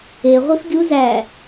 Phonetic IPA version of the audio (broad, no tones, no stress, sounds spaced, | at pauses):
e ʁʷ i f ɡʲ u z æ